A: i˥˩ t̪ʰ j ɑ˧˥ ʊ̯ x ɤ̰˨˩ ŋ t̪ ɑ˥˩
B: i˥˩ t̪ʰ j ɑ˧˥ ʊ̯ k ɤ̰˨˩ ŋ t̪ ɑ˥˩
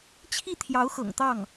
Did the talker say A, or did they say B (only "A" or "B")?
A